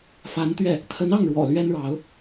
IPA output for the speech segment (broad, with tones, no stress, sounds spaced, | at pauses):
f a˧˥ n t̪ ɥ ɛ˥˩ | t̪ʰ ə˧˥ n ɑ˥˩ ŋ ɻ w ɔ̰˨˩ l ɥ ɛ˥ n ɻ ɑ˧˥ ʊ̯